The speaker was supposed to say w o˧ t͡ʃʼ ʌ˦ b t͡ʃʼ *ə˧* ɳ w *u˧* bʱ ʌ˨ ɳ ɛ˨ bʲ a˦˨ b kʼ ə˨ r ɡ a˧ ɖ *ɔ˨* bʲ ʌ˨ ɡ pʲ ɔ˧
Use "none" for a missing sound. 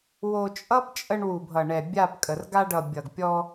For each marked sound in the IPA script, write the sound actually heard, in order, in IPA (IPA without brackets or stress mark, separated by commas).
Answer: ə˧, u˨, ʌ˨